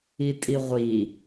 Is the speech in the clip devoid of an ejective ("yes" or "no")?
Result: no